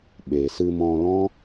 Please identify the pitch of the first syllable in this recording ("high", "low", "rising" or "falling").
low